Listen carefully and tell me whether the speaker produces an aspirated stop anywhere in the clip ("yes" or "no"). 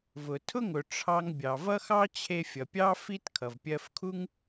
yes